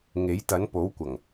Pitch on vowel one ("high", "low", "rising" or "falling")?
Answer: rising